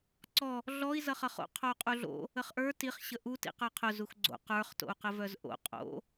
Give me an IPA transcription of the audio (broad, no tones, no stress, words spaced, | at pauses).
ǀɔ | ɮɔi̯ zʌχʌχo̰ qʰou̯qʼuɮo̰ | əχʔə˞ tiχ ɕəʔu tḭqə˞qʰʊ zuxɡ͡ǀo̰ qə˞χ to̰u̯qəvœzʔo̰ qʼo̰